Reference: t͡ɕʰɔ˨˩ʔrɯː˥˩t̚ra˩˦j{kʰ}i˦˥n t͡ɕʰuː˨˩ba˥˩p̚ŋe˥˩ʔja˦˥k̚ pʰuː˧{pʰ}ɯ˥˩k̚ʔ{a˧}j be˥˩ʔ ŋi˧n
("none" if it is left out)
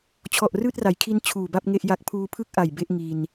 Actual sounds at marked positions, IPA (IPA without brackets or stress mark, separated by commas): kʰ, pʰ, a˨˩